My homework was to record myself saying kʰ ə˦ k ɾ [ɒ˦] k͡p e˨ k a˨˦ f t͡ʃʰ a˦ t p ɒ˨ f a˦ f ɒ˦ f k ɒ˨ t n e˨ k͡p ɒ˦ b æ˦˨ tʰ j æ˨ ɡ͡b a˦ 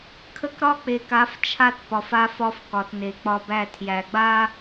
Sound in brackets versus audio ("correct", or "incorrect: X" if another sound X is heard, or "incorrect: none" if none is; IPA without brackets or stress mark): correct